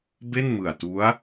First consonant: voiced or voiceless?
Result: voiced